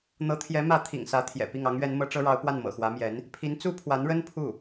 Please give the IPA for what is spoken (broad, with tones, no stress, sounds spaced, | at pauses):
n̪ ɤ˧˥ t̪ʰ j ɛ˧˥ m ä˧˥ t̪ʰ ḭ˨˩ ŋ s ä˧˥ t̪ʰ j ɛ̰˨˩ p i˥˩ ŋ ɑ˧˥ ŋ ɥ ɛ˧˥ n m ɤ˧˥ ʈ͡ʂ ɤ˥ ɻ ɑ˧˥ ʊ̯ p w a˥˩ n m ɤ̰˨˩ x w ä˧˥ m j ɛ˧˥ n | pʰ i˧˥ n t͡s u˥ pʰ w a˧˥ n ɻ ə˥ n pʰ u˥˩